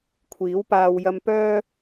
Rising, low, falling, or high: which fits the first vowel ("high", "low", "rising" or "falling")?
rising